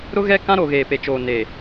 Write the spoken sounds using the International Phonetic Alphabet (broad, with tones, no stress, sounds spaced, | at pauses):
ɾ ʊ˦ ɣ ɛ˦ k ã˦ ɾ o˨ ɣ eː˨ p e˨ t͡ʃ oː˨ n e˨